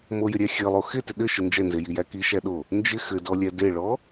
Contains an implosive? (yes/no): yes